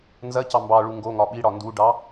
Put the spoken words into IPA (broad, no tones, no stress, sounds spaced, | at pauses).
n z ɐ c ɑ m b ɑ ɭ u ŋ ɡ o ŋ ɒ ɓ i ɽ ɒ n d u ɖ ɑ